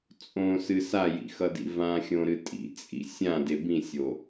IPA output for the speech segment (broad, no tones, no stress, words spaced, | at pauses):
t͡sʼõsɨ sajḭxʌdḭ vãxʲõɾɨ tʼḭt͡sʼḭ sʲãde bĩsʲo